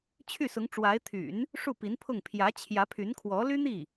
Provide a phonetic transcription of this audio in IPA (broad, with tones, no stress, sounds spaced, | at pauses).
t͡ɕʰ y˥˩ s ʊ˧˥ ŋ ʈ͡ʂ w a˧˥ ɪ̯ t̪ʰ y̰˨˩˦ n | ʂ u˥˩ p i˧˥ n pʰ ʊ˥˩ ŋ pʰ j ä˧˥ t͡ɕʰ j ä˧˥ pʰ y˧˥ n kʰ w ɔ˧˥ l y˥ n̪ i˥˩